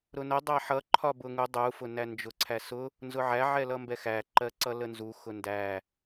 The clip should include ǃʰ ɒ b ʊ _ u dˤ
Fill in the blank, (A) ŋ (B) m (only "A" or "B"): A